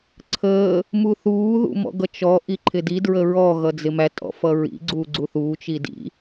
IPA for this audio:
ǀʰ əː | m u θ uː ð ṵ m ɔ̰ ɡ ʌ t͡ʃ ɔ ʔ i ǃʰ ɪ d i d ɹ ə ɹ ɔ ɣ ʌ d͡z ɪ m æ tʼ ɔ̰ f ʌ ɹ ḭ ɡ͡ǀ uː ɡ͡ǀ u θ uː t͡ʃ i d ḭ

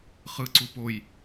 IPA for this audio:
χ ɯ ǀ u p o j

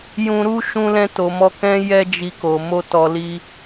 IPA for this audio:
j ũ˧ ɾ u˦ ʃ ũ˧ l ɛ̃˧ t o˨ m ɔ˧ k ɛ̃˦ j ɛ˦ d͡ʒ i˧ k o˨ m o˧ t ɔ˨ l i˧

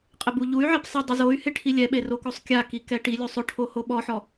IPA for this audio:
qʼ ɪ b u ʎ u y̯ ʕ e p sˤ ɪ dˤ ʊ z o y̯ h ɪ ʈʰ i lʲ ɛ ɓ e r o k o sˤ kʲ a k i k ɛ ʈ i lʲ u sˤ ʊ ʈʰ o h o ɓ ɔ ħ ɔ

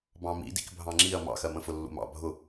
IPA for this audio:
b ɑ̃ m ḭ d ḭ k bʱ ɑ̃ ŋ͡ǁ i ɐ̯ m ɑ̰ x ɜ m ə̃ f ʊ lː ṵ m ɑ̰ bʱ ʊ

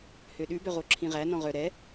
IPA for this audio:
h ø ɗ ʉ b œ ʁ o ǁʰ ĩ ʁ æ n ɔ̃ ʁ œ ɾ ɛ

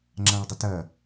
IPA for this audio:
ŋ͡ǁ ã ɭ dˤ ɨ t ɐ

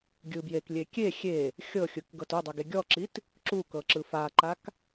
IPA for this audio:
ɡʲ ɯ b j e k lʲ e kʲ e xʲ e | xʲ ɤ xʲ ɯ k ɡ ɤ t o dˤ ɤ ɡ e ɡʲ ɔ ǁ i t | ǁ u k ɤ ǁ ɯ f a ǃ a k

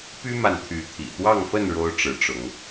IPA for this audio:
p y˦ m a˨ n t̪ʰ y˨˦ t̪ʰ ḭ˨˩ t̪ w ɑ˥˨ ŋ f ə˥˨ n ɻ o˦ ʊ̯ ʈ͡ʂ ɻ̩˨˦ ʈ͡ʂ ʊ˨˦ ŋ

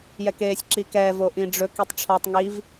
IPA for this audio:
j ɛ k eː sʲ ǁ i k ɛː v o ʔ ĩ ɖ͡ʐ ɵ k i tˤ ʈ͡ʂʰ ɔ tˤ ŋ i v

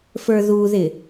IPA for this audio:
f ə˞ ð u ð ɪ

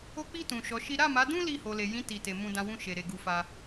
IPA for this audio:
o˧ k͡p i˧ t ũ˨ ʃ ɔ˨˦ ʃ i˦ ɾ a˦˨ m a˨˦ d ũ˦ l i˦˨ h o˨ l e˨ j ĩ˨˦ t i˦˨ t e˧ m ũ˧ d ã˧ w ũ˦ ʃ e˧ ɾ e˧ ɡ u˧ f a˧

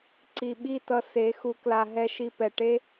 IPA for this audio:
ǀ i˨ ɓ i˦˨ t ʌ˧ s e˨˦ x u˧ k l a˧ ɦ ɛ˧ ʃ i˧ p ɛ˨ ʈ e˦

